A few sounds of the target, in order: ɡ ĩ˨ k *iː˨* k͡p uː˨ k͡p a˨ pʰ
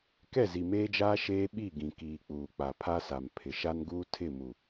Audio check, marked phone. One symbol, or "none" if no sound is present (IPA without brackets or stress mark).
iː˨